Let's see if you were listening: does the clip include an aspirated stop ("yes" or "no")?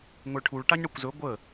yes